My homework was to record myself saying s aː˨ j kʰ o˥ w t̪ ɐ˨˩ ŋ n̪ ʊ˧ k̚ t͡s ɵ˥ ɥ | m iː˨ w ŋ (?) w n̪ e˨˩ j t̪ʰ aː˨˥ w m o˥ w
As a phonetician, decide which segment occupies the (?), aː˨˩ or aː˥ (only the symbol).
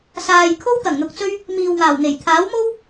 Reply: aː˨˩